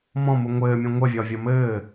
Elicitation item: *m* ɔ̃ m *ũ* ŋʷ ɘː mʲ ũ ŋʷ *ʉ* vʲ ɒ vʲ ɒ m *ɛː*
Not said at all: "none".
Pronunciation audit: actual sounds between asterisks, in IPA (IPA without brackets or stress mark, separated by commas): m, u, ə, ɘː